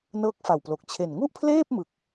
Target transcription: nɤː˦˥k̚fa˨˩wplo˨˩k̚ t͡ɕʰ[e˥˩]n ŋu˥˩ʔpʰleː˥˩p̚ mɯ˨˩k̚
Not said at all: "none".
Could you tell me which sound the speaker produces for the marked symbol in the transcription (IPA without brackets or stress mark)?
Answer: e˨˩